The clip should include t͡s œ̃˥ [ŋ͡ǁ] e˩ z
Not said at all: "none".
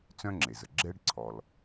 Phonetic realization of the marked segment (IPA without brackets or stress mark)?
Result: ŋ͡ǁ